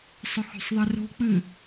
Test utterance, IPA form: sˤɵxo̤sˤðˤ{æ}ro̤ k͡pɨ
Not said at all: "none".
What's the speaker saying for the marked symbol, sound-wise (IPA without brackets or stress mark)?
ɛ